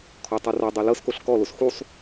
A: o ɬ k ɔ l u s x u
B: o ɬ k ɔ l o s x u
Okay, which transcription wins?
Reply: B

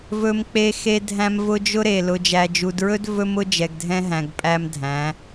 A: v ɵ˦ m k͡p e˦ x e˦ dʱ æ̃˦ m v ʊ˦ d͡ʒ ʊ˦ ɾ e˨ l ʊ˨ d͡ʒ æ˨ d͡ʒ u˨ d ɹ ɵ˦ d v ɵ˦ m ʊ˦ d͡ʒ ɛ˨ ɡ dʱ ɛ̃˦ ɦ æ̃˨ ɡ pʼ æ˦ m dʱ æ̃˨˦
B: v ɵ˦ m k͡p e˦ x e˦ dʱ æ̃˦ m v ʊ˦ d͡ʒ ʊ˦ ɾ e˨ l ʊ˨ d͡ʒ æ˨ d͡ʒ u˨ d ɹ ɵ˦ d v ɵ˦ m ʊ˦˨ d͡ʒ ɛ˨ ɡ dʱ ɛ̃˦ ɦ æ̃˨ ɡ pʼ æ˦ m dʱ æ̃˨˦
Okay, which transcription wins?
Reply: A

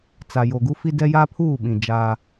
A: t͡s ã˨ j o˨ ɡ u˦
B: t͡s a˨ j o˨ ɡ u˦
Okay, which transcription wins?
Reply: B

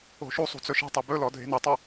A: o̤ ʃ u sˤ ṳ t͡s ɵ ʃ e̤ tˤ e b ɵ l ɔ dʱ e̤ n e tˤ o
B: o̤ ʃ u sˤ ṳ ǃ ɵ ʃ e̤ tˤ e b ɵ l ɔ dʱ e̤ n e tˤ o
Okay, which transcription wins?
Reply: A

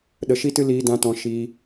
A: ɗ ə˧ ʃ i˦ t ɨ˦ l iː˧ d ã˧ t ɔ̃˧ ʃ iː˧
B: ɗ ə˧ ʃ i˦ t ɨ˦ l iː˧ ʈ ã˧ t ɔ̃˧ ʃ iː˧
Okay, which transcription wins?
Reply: A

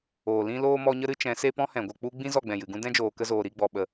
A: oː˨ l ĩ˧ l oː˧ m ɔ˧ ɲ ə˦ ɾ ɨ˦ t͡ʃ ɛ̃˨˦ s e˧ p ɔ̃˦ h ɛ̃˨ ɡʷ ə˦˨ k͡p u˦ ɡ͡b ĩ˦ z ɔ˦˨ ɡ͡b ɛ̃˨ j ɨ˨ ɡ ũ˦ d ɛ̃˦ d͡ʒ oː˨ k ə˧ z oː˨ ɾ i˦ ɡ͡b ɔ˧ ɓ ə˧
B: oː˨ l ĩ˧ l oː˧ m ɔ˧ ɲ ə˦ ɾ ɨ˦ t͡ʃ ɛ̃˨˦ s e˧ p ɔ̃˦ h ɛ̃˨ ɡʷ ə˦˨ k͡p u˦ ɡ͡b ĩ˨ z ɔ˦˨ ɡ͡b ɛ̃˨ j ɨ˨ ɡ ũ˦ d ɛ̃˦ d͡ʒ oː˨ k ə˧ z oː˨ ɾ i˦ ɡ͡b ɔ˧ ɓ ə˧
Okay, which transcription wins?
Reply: A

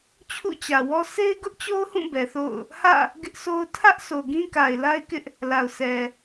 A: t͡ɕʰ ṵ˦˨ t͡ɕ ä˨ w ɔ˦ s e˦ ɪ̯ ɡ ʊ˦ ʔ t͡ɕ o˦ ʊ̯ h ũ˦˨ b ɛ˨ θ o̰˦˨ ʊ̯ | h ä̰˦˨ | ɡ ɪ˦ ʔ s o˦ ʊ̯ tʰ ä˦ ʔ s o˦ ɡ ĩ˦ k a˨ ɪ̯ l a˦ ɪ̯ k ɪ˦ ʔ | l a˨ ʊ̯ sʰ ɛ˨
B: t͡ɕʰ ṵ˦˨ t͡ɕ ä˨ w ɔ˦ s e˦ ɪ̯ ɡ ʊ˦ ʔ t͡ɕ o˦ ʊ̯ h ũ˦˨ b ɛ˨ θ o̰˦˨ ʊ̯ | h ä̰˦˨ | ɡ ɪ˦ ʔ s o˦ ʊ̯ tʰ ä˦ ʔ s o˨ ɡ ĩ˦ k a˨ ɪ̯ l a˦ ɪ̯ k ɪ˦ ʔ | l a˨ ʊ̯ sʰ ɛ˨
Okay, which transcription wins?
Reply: B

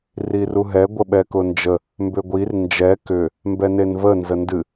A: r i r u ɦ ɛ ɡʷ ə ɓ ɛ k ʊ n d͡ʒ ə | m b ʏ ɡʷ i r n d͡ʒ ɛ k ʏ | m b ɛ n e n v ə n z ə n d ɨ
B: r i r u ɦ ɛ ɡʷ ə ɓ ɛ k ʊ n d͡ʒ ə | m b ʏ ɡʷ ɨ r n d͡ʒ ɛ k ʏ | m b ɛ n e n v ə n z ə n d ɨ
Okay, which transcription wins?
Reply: A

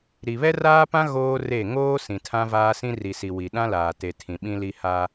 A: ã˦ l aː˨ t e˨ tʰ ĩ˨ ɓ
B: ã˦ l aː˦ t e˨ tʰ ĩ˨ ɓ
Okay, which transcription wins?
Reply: A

